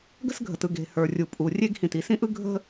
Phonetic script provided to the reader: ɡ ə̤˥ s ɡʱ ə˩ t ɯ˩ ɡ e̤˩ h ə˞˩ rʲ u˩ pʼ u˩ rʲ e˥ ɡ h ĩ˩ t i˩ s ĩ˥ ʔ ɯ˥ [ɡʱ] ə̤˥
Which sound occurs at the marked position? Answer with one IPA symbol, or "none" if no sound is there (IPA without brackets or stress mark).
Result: ɡʱ